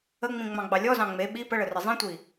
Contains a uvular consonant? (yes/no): no